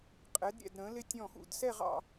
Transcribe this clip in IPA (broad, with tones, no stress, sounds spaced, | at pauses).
qʼ ɛ˩˧ d ɾʲ ɛ̰˧˩ d ɾ ə̃˩˧ l ɪ˧ tʲ ɔ̃˧˩ x ṵ˧˩ d s ɛ˥˧ ʁ ɑ̰˥˧